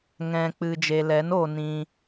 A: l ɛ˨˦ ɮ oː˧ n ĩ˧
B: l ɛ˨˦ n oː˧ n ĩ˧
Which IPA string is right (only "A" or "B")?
B